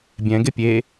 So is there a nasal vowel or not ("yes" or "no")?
yes